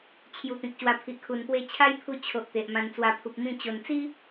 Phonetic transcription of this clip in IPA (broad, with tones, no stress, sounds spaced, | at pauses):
t͡ɕʰ j u˧ t̪ ĩ˨ k̚ ɕ w a˧ pʰ i˨ ʔ kʰ u˨˩ n p w e˧ t͡ɕʰ a˦ j pʰ u˧ t͡ɕʰ o˨ ʔ t̪ e˨ ʔ m ã˧ n t͡s w a˧ pʰ u˨ p̚ m ĩ˥˧ t͡ɕ o˨˩ n t͡s i˦